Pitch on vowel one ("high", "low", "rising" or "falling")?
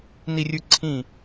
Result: falling